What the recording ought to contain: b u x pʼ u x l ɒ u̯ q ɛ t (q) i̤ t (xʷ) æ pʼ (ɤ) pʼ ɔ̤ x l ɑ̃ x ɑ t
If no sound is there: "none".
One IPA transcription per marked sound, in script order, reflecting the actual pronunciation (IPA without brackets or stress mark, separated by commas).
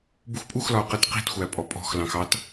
q, xʷ, ɔ